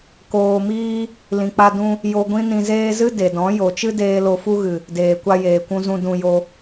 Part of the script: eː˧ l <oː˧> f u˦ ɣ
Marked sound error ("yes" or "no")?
yes